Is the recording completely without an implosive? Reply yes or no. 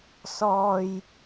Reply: yes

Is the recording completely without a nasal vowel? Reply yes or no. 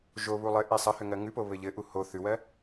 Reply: yes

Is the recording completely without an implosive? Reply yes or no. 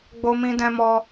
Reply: yes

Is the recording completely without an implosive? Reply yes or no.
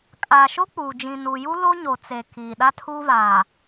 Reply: no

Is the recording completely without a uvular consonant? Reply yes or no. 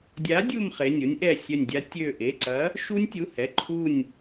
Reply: no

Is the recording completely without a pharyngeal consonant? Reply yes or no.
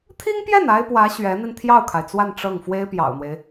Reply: yes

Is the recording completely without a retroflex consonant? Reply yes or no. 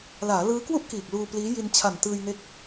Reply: yes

